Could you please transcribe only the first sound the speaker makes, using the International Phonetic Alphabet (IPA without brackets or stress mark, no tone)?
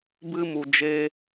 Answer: b